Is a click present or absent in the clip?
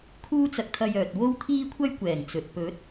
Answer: absent